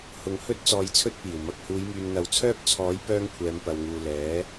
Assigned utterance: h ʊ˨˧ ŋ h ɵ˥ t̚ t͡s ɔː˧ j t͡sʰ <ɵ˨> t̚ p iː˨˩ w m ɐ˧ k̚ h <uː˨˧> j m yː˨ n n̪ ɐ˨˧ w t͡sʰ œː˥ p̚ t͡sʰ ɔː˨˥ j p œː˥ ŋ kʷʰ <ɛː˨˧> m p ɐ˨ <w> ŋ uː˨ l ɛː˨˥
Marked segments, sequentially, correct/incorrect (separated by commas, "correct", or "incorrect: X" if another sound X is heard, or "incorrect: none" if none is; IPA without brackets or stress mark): incorrect: ɵ˥, correct, correct, correct